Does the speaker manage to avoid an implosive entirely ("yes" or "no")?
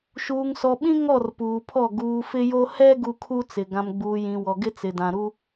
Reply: no